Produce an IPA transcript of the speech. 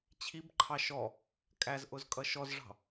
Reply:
t͡ɕʰ i b ǃʰ ɑ ʃ ɔ | kʼ æ z ʔ ʊ z kʼ ʌ ʃ ɔ z ʐ ɑ̤

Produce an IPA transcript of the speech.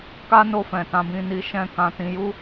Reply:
k a˦ n o˧ f ɛ̃˨ t ã˧ b ĩ˧ n i˧ ʃ ɛ̃˦ k ã˧ t ĩ˧ j u˦

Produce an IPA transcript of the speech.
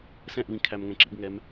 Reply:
s ɛ̃ ʔ β ĩ kʰ æ m ŋ ɛ̃ ǁ ḭ ɡ ŋ ɛ m

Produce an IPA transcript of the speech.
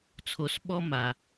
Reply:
t͡sʰ o˧ s ɓ ɔ˦ m a˧

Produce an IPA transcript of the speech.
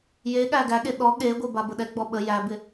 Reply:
j e ɠ æ ɡ æ ɠ e ɗ ɔ ɠ e ɡʷ e b a b ə ɗ ɛ ɡ͡b ɔ ɓ ə j æ b ɪ

